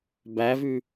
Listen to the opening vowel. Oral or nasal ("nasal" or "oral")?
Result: oral